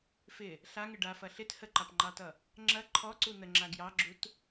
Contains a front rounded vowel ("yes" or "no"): no